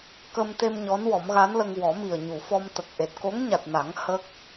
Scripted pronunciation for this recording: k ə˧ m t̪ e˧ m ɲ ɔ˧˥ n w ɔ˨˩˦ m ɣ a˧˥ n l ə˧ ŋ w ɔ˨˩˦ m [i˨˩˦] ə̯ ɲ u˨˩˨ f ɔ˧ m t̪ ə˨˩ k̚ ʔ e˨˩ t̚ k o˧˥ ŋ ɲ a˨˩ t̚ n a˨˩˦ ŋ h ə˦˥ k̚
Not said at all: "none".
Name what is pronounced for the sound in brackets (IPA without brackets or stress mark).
i˨˩